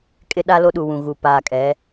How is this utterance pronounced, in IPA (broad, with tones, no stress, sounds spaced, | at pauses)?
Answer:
kʼ ɪ˦ ɗ a˦ l o˦ ɗ u˨ w ũ˨ ɣ u˨ p aː˨ kʼ ɛ˨˦